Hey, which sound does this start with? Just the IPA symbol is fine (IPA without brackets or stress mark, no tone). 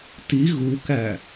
t